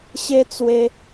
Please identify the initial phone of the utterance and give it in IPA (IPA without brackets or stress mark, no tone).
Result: ɕ